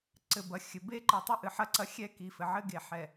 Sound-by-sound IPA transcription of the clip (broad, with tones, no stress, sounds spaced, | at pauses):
ǀ ɘ˨ b ɐ˨ xʲ ɘ˨ b e˦ ǃ ɨ˨ tˤ ɘ˦ ʔ ɨ˨ ħ ɐ˦ ǀ ɐ˦ xʲ ɛ˦ k i˨ f ɘ˨ ʕ ɘ˦ ɡ e˨ ħ ɛ˨